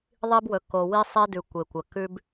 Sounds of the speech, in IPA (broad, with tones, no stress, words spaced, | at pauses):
ðˤi˦bwɵ˨ ko˨wi˦sˤe˦ dʉ˨kʷe˨kʷɐ˨ kʉ˦b